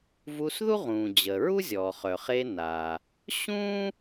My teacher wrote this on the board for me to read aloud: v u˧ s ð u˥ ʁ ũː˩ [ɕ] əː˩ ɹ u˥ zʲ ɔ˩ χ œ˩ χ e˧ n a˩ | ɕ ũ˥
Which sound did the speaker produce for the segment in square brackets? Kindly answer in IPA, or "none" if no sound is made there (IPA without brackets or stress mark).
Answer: d͡ʑ